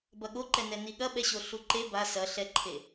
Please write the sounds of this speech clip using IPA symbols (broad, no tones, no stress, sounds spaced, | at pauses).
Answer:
b ɐ ɠ o ǃ ɛ n ɛ n i ɠ ɐ ɓ ɛ ɕ o ɬ u ǃ e b a s ɐ ɬ ɛ ǃʰ e